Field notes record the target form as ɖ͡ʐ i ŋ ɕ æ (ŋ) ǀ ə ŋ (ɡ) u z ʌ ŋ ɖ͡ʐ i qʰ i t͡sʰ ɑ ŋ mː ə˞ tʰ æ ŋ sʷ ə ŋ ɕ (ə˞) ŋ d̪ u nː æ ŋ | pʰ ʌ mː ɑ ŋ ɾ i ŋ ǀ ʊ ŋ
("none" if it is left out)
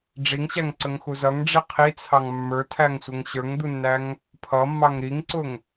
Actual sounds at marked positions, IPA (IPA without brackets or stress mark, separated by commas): ŋ, x, ə˞